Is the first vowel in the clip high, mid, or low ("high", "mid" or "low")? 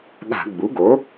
low